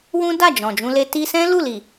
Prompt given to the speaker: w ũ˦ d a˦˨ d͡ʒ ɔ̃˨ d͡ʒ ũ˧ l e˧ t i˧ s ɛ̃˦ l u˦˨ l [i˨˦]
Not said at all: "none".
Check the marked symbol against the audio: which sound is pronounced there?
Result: i˨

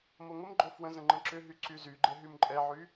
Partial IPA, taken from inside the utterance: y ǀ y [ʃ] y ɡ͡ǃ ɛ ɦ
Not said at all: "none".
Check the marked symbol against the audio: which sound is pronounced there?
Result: z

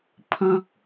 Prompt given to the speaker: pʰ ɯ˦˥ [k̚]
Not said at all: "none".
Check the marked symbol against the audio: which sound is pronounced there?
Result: k̚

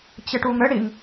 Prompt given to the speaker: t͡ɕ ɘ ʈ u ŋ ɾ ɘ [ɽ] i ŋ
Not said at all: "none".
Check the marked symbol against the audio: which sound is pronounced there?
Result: ɽ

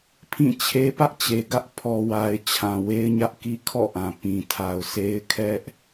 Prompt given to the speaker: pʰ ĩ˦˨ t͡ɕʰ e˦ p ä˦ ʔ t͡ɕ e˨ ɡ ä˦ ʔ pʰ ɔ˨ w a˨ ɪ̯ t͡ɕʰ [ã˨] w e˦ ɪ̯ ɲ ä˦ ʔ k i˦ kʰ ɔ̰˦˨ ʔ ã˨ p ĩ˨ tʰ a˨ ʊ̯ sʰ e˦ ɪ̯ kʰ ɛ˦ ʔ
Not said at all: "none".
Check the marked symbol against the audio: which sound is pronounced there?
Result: ã˨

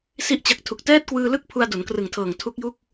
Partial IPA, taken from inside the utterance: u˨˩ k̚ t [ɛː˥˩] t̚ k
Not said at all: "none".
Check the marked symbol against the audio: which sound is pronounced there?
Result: ɛː˥˩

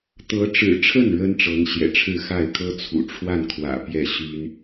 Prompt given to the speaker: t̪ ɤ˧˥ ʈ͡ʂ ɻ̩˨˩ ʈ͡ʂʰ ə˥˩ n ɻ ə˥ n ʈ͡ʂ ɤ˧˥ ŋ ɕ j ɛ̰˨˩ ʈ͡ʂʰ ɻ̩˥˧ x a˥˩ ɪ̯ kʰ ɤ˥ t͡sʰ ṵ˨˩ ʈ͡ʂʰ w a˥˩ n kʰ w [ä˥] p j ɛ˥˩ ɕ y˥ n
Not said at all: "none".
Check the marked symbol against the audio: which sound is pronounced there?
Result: ä̰˨˩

